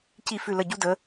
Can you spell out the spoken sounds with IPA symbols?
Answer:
c i˥˩ f ʉ˥˩ l ə˥˩ ɟ u˥ d ə˩˥

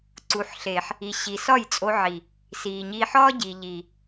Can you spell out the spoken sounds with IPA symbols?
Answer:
ǀ u˨ ħ ɬ e˨ ħ | i˨ ɕ i˨ s ɒ˦˨ j t͡sʼ o˧ ʕ i˨ | s iː˨ ɲ iː˧ ħ ɒː˦ ɟ i˨ ʎ i˨

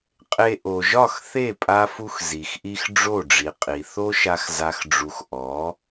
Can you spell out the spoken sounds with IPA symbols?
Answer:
qʼ e˧ ʔ o˨ ʒ ɒ˦˨ x θ e˦˨ pʼ a˦ f u˦ x z i˨ x ʔ i˦ x ɖ͡ʐ o˦˨ ɖ͡ʐ i˨ qʼ i˨ θ o˦ ʃ a˧ x z a˦ x ɖ͡ʐ u˧ x ʔ ɔ˨˦

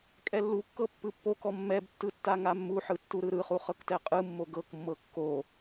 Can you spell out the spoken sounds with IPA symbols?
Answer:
kʼ ɛ lː u kː ɤ pː ɯ pː o k ɔ mː ɛ b tː ɯ tː a ŋ a mː u ħ ɯ tː u ɾ ɯ ɾ ɯ χ u χ ɤ k t ɛ qʼ ɯ mː o ɡ ɤ k mː ɤ kː o

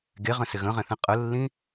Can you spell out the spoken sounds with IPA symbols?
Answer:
ɡ e ʁ ə̃ s ɪ ɣ ə̃ ʁ ɛ̃ θ ɛ̃ qʼ ə lː ĩ

